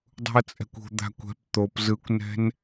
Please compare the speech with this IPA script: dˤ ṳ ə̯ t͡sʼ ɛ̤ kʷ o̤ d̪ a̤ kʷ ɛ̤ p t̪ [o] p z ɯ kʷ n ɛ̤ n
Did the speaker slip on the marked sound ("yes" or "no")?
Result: no